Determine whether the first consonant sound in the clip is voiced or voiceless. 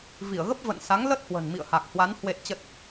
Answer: voiced